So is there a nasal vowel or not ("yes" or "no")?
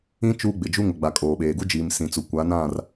yes